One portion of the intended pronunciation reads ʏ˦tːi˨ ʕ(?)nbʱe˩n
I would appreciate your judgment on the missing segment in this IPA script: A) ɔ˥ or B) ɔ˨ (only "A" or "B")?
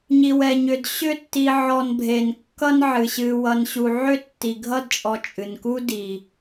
B